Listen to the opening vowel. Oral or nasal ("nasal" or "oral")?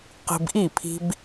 oral